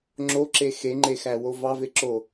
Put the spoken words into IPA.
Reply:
ŋ͡ǁ o ǁ e x e ŋ͡ǃ e x æ w o v ɑ v e ǁ o

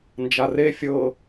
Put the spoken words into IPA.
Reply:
n d͡ʒ a r e fʲ ɤ

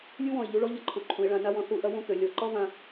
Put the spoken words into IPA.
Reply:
lʲ u˥ w ɔ̃˧˩ ɪ̯ ʎ u˧ ɭ ɔ˥ ʎ ʌ˧ ǃʰ u˩˧ ǃʰ ũ˩˧ ɪ̯ ɭ ã˧ n a˥ w ɔ̃˧ θ u˧˩ ʔ ɐ˥ w ũ˧ k ø˩˧ lʲ ɔ˧˩ ǃ ɔ˥ v ã˧

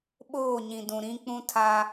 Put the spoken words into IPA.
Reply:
ɓ oː˦˨ ɲ ĩ˨ d ũ˨ ɾ ĩ˦ k͡p ũ˦ tʰ a˦

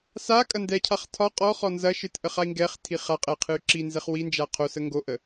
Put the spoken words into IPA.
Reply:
s a kʼ ɐ n d ɛ cʰ a χ tʰ ɒ qʼ ɔ χ ɔ n z ɐ ʃ ɨ t ʔ ə χ a i̯ ŋ ɡ ɛ χ tʰ i χ a qʼ ɛ qʰ ɨ y̯ ǁ i n z ɛ χ w i n d͡ʒ a qʰ o s ə ŋ ɡ o ʔ ə

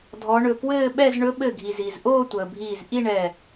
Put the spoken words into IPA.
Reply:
dʱ ɔ˨˦ ɳ ɵ˧˩ k w ɘː˥˧ ɓ ɛ˥˧ z ɳ ɵ˨˦ ɓ ɘ˧˩ ɡʱ i˩ z i˩ z ʔ oː˥˧ tʷ əː˩ bʱ iː˧˩ z ʔ i˥˧ ɳ ɛ˧˩

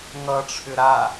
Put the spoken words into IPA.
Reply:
ŋ ʌ ʈ͡ʂʰ ʏ ɾ a

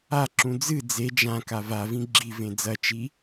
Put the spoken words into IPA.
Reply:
a ǁ ũ d͡z ɨ d͡z e d͡ʒ ã k a v a v ĩ ɡ͡ǁ i v ẽ d͡z ɐ t͡ʃ i

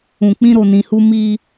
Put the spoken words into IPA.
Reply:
ũ˨ k͡p ĩ˧ ɾ o˨ n ĩ˨ h u˧ m i˧

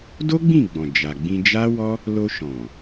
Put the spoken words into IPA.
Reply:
d o˦ ɡ͡b ĩ˦˨ ɡ͡b ɔ̃˨ d͡ʒ a˨ ɡ͡b ĩ˧ d͡ʒ a˦ w ɔ˦ | l o˧ ʃ ɔ̃˨

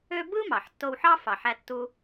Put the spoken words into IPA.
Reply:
ø˥ b ɯ˥ m ɑ˩ ħ tː o˧ w ħ ɑ˥ f ɑ˩ ħ æ˧ tː u˧

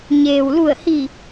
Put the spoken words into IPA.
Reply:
ɲ eː˩ w l u˧˩ ə̯ h i˧˩

